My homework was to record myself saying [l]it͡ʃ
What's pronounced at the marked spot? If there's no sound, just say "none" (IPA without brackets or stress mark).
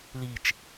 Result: l